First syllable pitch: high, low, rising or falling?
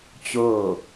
falling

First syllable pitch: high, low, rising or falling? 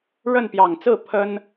falling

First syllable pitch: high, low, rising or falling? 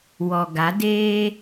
low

